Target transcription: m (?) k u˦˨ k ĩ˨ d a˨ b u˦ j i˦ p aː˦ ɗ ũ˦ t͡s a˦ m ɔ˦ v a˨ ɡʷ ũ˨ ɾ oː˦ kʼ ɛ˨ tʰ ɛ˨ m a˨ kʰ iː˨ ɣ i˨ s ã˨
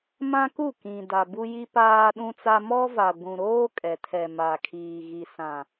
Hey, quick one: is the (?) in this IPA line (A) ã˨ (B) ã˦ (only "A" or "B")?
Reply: B